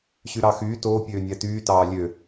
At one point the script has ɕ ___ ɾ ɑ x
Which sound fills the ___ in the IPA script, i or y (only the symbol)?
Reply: y